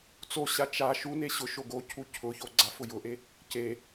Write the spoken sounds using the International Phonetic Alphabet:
t͡s o ɕ a t͡ʃ a ʃ u n e ɕ ʊ ʃ o ɡ o cʰ u cʰ ʊ ç o ɡ͡ǀ a f ʊ j ʊ ʔ e | c e

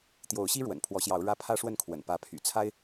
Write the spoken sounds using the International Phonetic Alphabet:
t̪ j o˨˦ ʊ̯ ɕ i˦ ɻ w ə̰˨˩ n pʰ w ɔ˨˦ ɕ j ɑ˨˦ ʊ̯ ɻ ä˦ pʰ ä˦ ʂ w ə˥˨ n kʰ w ə̰˨˩ n p ä˨˦ pʰ y̰˨˩ t͡sʰ a˦ ɪ̯

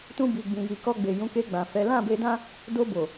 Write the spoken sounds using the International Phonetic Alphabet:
t ũ˧ b i˨ ɡ͡b ĩ˨ j i˨ k ɔ˧ ɡ͡b e˨ j ũ˨˦ k e˧ ɡ͡b ã˨ f ɛ˨˦ l ã˦˨ b e˧ d ã˦ | d o˧ b o˨

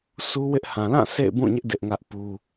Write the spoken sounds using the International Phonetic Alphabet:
s u˦ w ɪ˦ ʔ h ã˨ l ã˦˨ sʰ ḛ˦˨ ɪ̯ b ũ˦˨ ɲ ɪ˦ ʔ d ɪ˦ ʔ ŋ ä˦ ʔ p u˦

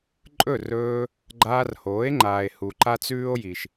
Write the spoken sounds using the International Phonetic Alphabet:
ǃʼ ɵ˦˨ r ɵː˧ | ɡ͡ǃ aː˧ r h oː˨˦ e̯ ŋ͡ǃ aː˨ e̯ h u˨ ǃ a˦ t͡s ʉː˦ o̯ j i˨ ʃ

